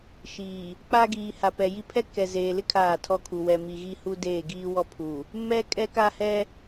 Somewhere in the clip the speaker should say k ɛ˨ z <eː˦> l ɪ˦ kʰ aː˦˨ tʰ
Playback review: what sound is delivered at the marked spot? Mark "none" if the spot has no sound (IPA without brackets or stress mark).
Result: eː˨